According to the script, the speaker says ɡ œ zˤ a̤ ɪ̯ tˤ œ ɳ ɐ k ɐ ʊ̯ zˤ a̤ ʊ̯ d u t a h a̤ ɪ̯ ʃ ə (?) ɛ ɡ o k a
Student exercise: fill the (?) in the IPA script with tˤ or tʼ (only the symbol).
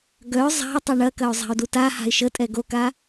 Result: tʼ